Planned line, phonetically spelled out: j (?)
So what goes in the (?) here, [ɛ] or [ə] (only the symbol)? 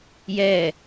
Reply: ɛ